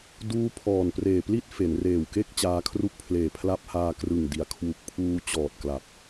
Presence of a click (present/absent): absent